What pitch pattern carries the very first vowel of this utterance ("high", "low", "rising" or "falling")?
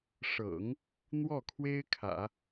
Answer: low